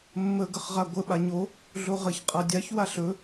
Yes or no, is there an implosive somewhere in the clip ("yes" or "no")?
yes